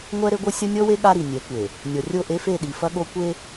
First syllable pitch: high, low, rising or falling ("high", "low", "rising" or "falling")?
high